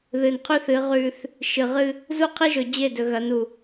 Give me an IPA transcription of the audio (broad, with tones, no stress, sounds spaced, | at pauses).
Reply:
ð ɨ˨ n qʰ ʉ˦ θ ɨ˨˦ ʁ ʉ˦ θ | ʃ ɨ˨ ʁ ɨ˦ | z u˦ qʰ i˦ ʒ ɵ˨ d͡ʑ e˦˨ d ɵ˨ ɣ ɐ˨˦ n u˨